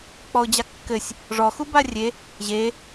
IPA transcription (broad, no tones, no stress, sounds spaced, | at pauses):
k͡p ɔ ʊ̯ d͡ʑ a kː ɘ sʲ | ʐ ɔ x u b a rʲ e | ʑ e